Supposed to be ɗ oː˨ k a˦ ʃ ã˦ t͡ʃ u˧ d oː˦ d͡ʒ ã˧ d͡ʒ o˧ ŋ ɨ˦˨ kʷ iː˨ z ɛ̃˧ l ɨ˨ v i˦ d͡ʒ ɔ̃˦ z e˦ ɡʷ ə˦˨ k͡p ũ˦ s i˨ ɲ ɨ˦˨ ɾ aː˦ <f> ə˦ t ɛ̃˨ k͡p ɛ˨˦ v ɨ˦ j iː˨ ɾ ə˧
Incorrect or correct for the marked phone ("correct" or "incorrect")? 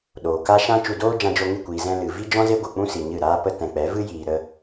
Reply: incorrect